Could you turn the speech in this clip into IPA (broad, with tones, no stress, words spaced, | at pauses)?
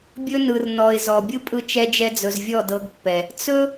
bʲɵ˦nɯ˨r nɔ˨ɪ̯ zɔ˨ bʲɯ˦pʼɯ˧ t͡ʃɛ˧d͡ʒɛ˧d͡zɵ˨z vʲɔ˦˨dɤ˧ɡpːɛ˨ | t͡sɵ˦